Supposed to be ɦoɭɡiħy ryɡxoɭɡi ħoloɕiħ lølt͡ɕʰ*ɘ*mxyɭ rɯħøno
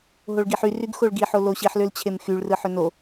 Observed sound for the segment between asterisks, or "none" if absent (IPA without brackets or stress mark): e